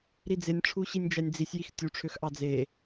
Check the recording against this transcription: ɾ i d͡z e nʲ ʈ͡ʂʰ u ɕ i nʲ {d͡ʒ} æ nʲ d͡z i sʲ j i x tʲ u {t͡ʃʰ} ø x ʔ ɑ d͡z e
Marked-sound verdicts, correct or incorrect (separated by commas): correct, incorrect